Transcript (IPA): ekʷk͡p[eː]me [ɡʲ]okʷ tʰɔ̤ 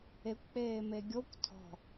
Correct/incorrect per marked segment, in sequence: correct, correct

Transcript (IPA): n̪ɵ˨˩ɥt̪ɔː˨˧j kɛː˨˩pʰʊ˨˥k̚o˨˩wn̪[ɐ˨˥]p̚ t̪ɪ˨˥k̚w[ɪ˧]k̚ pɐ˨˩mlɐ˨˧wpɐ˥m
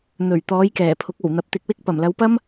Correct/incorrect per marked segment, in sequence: correct, incorrect: ɪ˥

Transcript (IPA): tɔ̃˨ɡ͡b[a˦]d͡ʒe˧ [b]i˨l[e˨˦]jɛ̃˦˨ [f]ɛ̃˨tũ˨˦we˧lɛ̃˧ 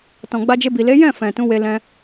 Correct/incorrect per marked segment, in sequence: incorrect: a˧, correct, correct, correct

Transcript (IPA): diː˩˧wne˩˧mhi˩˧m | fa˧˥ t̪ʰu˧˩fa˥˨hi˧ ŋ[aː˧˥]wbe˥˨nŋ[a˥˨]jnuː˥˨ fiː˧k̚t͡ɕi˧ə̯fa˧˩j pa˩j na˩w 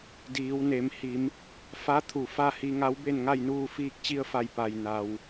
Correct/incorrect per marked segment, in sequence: incorrect: a˧˥, correct

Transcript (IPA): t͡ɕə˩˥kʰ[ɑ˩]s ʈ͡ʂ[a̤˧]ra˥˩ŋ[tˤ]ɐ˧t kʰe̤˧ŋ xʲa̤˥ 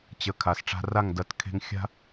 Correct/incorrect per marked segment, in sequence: incorrect: a˩, correct, incorrect: d

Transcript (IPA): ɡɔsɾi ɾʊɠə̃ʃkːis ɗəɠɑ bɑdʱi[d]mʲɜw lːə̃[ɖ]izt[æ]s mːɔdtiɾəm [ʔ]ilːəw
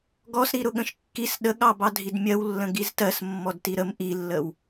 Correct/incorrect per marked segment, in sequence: correct, incorrect: ɡ, incorrect: ɜ, correct

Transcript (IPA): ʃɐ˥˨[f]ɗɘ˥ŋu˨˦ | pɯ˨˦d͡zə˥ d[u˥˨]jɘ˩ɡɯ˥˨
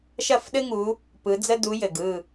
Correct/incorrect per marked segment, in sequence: correct, incorrect: u˨˦

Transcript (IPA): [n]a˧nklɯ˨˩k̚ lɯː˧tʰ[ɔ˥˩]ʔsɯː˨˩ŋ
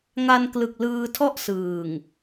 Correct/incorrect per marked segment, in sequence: incorrect: ŋ, correct

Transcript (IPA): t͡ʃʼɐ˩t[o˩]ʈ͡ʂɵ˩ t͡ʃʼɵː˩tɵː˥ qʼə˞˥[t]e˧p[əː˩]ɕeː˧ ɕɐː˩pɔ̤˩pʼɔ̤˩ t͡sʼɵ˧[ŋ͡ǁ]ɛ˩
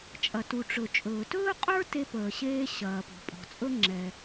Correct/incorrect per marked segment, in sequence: incorrect: u˩, correct, correct, correct

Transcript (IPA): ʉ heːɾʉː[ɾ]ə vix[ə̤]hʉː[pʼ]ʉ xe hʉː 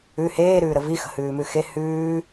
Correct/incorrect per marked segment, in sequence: correct, correct, incorrect: m

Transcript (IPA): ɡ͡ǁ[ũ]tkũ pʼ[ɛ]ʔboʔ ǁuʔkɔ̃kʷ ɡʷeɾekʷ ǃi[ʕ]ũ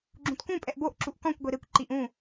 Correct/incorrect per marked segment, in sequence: correct, correct, incorrect: ʔ

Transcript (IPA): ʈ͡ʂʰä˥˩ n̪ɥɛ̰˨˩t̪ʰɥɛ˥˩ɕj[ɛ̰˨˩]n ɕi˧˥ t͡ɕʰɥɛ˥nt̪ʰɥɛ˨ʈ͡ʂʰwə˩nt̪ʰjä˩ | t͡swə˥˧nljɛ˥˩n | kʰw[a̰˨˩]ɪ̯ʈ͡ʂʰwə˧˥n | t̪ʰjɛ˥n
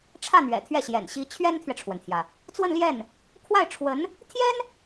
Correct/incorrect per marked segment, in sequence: correct, incorrect: a˥˩

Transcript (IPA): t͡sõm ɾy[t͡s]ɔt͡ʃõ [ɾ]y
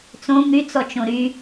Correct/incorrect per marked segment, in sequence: correct, correct

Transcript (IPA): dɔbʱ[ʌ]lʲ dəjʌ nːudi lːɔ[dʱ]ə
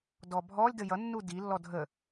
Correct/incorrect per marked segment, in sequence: incorrect: ɔ, correct

